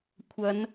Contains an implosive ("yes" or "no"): no